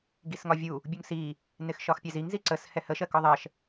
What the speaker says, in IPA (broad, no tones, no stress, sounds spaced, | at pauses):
ɡ i s ŋ ɒ vʲ u | bʲ u ŋ s i | n ɪ x ʃ ɒ x pʲ æ z i ŋ z i ǀ ə s h ɛ h ə ʃ ɜ k ɔ ðˤ ɜ ʃ